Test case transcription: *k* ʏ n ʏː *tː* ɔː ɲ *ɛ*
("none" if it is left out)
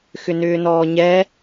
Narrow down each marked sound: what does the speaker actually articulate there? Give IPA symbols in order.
x, n, ɛ

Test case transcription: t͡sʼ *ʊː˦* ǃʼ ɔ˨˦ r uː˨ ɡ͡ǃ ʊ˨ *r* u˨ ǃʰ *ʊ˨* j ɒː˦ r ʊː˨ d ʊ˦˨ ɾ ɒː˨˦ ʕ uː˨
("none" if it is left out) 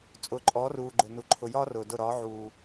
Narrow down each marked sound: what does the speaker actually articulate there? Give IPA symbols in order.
ʊː˨, n, ʊ˨

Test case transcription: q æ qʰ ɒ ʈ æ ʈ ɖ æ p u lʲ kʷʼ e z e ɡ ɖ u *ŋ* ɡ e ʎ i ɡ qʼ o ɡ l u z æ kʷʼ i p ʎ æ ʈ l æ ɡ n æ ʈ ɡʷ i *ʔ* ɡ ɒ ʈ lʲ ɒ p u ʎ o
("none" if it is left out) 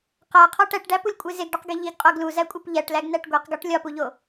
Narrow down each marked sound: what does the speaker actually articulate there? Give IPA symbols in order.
q, q

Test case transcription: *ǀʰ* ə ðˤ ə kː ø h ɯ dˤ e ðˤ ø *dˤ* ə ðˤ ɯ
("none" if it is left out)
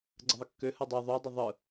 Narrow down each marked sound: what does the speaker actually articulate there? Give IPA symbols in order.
ɡ͡ǀ, dˤ

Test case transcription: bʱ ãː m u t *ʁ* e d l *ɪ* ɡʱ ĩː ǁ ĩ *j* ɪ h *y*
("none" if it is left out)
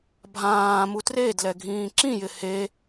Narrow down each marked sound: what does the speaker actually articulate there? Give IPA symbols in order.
r, ɛ, j, e

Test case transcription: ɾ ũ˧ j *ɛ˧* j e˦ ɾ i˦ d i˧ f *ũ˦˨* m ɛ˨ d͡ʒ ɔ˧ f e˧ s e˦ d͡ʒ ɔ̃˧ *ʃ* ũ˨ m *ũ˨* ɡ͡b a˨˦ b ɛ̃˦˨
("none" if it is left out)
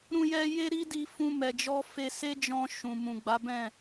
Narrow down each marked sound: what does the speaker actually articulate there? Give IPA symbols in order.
ɛ˧, ũ˧, ʃ, ũ˨

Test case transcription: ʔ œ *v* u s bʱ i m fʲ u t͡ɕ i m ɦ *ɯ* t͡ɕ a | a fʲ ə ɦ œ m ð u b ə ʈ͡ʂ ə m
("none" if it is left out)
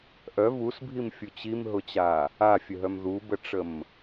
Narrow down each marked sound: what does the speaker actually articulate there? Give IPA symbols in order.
v, ʊ

